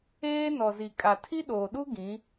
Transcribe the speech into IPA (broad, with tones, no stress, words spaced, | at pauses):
eː˦ nɔ˨zi˨ kʼa˨tʰi˦ɗoː˨ɗu˦ ɡĩ˨˦